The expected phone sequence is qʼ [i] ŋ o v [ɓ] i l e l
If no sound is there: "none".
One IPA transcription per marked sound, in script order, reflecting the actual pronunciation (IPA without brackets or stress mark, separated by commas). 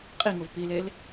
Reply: i, p